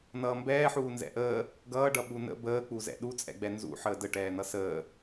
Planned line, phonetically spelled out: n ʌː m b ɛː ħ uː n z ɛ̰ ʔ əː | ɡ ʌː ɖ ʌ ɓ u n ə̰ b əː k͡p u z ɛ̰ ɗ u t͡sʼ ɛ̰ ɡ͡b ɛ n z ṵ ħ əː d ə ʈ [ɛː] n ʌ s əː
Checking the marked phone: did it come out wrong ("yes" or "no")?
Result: no